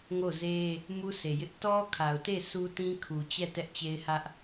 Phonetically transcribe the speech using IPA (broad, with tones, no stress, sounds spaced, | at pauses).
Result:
ŋ o˦˨ z e˦ | m u˦ s e˨ j ɪ˦ ʔ t ɔ˦ kʰ a˨ ʊ̯ t e˦˨ sʰ u˦ t ĩ˦ kʰ u˨ t͡ɕ ɛ˦˨ t ɛ˦ ʔ t͡ɕ e˦ ɪ̯ h ä˦ ʔ